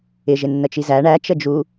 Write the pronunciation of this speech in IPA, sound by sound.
ɪʒɪnːət͡ʃi zæ ɳæt͡ʃə d͡ʒu

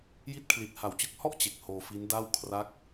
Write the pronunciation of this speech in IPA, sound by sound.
ji˥˩t̚ kʰli˨˩t̚ha˨˩wt͡ɕɯ˦˥k̚hɔ˥˩ʔ t͡ɕe˨˩k̚hoː˧fi˦˥nda˥˩w kʰra˦˥k̚

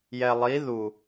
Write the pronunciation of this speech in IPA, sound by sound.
jɛ lˠi ðu

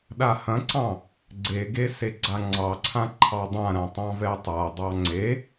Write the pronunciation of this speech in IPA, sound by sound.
ɗahɐ̃ǀɑ̃ | ɡ͡ǀeɡe seɡ͡ǀaŋ͡ǀɑǀʰã ǃʰɑdˤãɾã tˤɑ̃vɛtˤadˤɑ ŋ͡ǀe

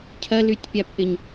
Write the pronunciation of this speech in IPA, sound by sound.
cʰɐlytʲpʲapʔɪɲ

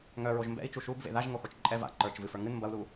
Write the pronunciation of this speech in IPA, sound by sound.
ŋœ ɹoʒmbɛ̰i̯ t͡ʃuʃubvḛ ðaʒ ŋoxot͡ʃǃʼɛ va̰ ǃə˞t͡ʃ vɨfə˞ ŋɨn mbɐu̯lu

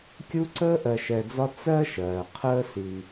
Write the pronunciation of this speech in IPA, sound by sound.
kʲu˥ ǀəː˥ʔɜ˨ʃɛ˨d͡zɒ˦ t͡sɜ˥ʃɜː˩ qʰəː˥ si˩

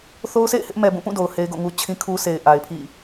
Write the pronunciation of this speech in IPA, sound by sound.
θo˦ʊ̯sḛ˦˨ɪ̯hɪ˦ʔmɛ˨ bũ˦˨ pũ˦˨ do˨ʊ̯he˦ɪ̯ɡo̰˦˨ŋu˦ t͡ɕʰĩ˦kʰu˦sʰe˨ɪ̯ ʔa˨ɪ̯pʰḭ˦˨

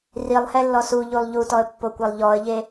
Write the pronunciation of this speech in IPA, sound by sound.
rilˠhɛlːɔ suʎulˠ ʎutɔə̯pːokʷalˠ ʎɔə̯ʎe

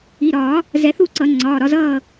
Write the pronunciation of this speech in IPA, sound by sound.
i˩˧˩ɾɒː˨˩˦ | zɛ˨˩˦θu˦˨ǀʌ˨˩˦ ŋ͡ǀɒː˩˧˩ɾɒ˦˨zʌː˦˨

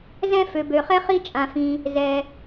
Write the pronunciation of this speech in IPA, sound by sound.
zɛ̃˥ fø˨bø˨χɛ˥ χi˦t͡ʃʼã˨fĩ˨ | zɛ˨

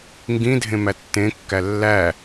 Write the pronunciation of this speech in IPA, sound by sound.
ŋɡĩdʱẽ mætːẽkːæ lːæ

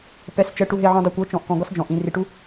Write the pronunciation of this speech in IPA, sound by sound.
pɛ˨st͡ʃɛ˨ ʈu˨ɦe˨ʕũ˨ dˤɤ˨kʷɤ˨˦ t͡ʃɔ̃˨ʔkɔ̃˨ɡɔ˦s d͡ʒɔ̃˨ʔĩ˨ ri˨ʈu˦

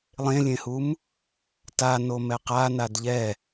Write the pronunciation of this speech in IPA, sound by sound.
lˠẽlʲẽhum | ta nomɛqa nadʎɛ

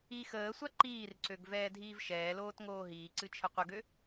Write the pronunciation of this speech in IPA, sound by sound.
i xəːsʷa ǃiːrǀøɡ vɛːdʱiːvʃɛːloːt ŋoːɦiːǀɨ t͡ʃʰəqʷəɡø

